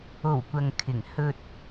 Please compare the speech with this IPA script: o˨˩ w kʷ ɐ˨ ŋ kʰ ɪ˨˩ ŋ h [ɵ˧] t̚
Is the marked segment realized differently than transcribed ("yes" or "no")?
no